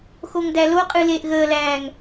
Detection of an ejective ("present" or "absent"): present